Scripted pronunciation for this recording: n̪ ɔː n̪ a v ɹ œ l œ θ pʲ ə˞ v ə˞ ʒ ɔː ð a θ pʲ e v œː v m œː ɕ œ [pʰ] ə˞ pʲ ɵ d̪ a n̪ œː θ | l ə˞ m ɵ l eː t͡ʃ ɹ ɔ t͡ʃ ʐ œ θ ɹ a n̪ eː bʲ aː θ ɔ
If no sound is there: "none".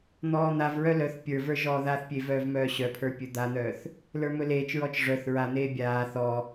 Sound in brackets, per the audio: pʰ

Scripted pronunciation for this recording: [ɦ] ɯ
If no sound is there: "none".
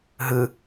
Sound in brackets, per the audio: ɦ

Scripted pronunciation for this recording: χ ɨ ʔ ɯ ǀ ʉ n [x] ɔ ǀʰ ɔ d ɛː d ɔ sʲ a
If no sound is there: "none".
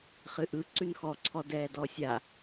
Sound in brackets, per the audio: x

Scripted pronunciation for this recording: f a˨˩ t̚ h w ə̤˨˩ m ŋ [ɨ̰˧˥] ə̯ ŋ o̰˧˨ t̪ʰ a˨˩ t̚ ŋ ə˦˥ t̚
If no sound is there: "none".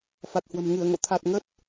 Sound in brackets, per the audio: ɨ˧˩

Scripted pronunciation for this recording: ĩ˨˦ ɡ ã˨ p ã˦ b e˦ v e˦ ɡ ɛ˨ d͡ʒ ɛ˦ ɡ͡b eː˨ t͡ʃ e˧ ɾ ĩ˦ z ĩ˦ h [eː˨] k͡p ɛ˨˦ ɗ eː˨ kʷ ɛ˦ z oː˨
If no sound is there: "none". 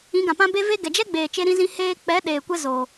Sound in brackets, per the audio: eː˧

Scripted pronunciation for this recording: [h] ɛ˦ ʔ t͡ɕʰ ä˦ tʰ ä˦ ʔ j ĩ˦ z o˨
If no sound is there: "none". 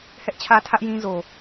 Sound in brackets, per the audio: h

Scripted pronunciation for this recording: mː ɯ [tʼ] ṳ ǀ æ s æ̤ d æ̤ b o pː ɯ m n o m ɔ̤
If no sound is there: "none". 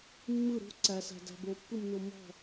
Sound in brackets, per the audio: ɾ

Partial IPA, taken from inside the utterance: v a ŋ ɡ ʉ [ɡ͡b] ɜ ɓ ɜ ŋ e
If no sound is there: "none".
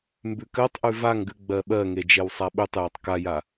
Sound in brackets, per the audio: ɡ͡b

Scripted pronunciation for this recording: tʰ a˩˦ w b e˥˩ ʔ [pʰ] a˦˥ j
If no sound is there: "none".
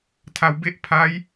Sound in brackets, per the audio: pʰ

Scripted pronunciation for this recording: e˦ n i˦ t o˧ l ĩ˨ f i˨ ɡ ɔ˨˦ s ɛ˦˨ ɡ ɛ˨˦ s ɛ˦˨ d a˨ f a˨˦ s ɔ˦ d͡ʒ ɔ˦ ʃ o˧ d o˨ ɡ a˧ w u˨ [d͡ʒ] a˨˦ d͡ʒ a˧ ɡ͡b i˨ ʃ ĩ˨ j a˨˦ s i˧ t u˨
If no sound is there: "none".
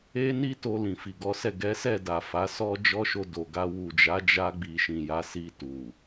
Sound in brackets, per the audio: d͡ʒ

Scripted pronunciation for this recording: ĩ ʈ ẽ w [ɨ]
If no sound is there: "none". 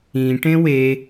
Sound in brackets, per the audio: e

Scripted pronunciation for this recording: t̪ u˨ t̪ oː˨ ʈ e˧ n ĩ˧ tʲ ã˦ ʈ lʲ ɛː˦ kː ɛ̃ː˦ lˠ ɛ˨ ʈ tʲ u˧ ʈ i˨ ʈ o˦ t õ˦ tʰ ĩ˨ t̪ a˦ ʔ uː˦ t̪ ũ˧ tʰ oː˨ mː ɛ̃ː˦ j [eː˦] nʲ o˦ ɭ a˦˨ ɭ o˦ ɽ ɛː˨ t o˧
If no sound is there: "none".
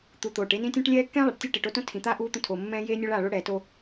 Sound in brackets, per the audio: eː˦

